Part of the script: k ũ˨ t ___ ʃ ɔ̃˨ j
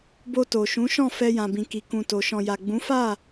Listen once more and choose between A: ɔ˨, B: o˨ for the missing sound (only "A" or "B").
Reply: B